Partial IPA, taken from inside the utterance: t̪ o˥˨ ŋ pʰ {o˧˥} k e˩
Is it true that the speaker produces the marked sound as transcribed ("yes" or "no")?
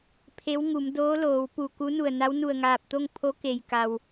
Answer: yes